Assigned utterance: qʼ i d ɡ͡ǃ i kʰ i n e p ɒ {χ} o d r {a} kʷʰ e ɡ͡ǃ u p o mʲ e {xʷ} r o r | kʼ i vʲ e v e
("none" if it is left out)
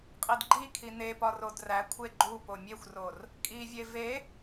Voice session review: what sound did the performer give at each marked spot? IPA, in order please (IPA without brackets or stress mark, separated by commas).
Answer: r, æ, xʷ